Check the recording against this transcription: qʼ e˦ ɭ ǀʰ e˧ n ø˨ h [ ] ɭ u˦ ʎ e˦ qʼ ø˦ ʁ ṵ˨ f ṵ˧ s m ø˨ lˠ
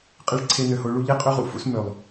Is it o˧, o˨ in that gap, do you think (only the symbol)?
o˧